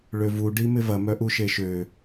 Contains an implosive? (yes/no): no